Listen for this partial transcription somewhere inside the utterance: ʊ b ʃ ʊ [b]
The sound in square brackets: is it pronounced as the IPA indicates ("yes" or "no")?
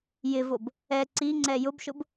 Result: yes